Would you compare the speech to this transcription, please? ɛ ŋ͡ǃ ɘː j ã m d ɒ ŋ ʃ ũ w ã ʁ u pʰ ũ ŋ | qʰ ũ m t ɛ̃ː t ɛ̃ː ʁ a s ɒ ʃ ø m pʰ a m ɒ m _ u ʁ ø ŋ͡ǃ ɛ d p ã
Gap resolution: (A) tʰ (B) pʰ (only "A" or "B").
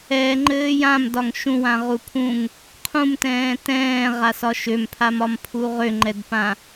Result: B